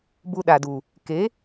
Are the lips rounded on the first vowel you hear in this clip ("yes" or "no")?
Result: yes